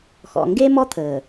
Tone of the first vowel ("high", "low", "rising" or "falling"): low